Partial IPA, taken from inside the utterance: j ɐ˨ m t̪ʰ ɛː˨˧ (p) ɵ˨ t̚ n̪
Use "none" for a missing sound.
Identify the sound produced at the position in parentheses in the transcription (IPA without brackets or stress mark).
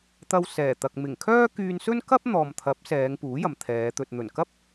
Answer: t̪